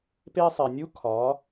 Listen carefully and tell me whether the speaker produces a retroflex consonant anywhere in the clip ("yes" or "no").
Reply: no